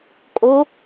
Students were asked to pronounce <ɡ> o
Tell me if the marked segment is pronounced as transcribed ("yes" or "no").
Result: no